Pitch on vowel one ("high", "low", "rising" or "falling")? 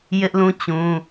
high